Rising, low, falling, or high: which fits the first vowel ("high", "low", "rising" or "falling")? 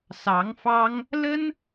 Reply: rising